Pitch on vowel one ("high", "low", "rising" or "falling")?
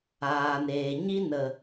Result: low